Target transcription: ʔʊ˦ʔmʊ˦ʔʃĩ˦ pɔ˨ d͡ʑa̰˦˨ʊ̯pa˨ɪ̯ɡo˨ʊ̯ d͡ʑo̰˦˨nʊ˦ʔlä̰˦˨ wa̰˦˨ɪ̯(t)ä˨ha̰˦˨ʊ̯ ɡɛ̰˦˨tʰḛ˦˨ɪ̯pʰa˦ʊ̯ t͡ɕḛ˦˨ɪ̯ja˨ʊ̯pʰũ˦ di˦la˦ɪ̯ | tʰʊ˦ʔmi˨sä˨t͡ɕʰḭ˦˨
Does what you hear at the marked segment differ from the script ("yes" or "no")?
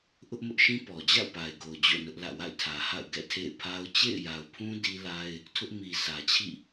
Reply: yes